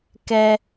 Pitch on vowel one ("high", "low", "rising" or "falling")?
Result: high